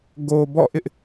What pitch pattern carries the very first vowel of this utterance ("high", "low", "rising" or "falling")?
low